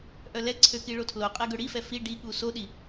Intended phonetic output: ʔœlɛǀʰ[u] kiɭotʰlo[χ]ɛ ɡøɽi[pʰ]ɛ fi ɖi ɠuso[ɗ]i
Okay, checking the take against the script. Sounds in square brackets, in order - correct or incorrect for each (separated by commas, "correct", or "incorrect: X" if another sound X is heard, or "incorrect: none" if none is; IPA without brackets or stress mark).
incorrect: ø, incorrect: qʼ, incorrect: f, correct